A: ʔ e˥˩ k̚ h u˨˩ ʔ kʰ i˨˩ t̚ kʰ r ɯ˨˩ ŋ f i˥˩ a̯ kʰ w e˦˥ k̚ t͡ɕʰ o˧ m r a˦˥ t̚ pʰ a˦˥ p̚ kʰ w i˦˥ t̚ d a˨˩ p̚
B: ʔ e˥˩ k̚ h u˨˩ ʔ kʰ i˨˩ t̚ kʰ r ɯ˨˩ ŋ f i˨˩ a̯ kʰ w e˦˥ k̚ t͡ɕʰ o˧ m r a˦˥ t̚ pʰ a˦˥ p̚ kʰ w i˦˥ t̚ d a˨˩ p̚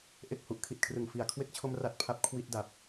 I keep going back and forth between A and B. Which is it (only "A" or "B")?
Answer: B